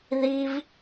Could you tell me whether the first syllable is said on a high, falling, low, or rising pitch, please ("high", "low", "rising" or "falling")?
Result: high